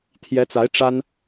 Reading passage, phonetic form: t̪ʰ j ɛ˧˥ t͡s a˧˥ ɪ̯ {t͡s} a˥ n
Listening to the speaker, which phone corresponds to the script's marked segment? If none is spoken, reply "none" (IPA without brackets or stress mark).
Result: ʈ͡ʂ